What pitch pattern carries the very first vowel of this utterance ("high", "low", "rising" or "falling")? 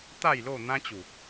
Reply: falling